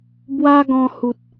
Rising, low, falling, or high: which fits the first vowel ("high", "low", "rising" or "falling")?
high